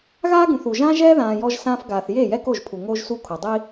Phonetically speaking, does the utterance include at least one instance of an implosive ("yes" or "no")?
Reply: no